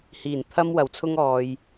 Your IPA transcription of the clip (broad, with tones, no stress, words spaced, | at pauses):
hiː˨˩n t̪ʰɐ˧mwɐ˨˩wt͡sʰʊ˧ŋ ɔː˨j